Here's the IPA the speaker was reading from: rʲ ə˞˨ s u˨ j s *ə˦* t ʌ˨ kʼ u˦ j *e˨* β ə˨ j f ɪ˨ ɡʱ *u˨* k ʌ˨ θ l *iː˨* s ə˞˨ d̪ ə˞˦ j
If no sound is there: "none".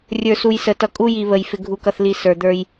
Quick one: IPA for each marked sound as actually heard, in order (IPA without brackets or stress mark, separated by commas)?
ə˨, i˨, u˨, i˨